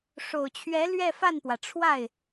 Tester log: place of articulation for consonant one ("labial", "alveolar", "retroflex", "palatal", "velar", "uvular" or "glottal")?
retroflex